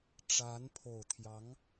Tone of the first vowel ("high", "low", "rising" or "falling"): rising